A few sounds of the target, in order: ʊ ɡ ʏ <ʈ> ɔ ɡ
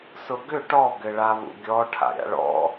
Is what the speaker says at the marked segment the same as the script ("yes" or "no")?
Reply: yes